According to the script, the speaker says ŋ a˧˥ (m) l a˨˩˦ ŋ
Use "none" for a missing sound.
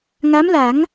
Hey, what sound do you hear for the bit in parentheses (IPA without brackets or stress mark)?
m